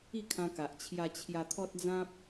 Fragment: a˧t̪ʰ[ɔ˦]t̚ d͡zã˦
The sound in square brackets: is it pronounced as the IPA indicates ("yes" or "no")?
yes